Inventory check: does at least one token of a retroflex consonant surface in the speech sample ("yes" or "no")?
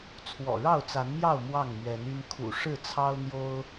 yes